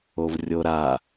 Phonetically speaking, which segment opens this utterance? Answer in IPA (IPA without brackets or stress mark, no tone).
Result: o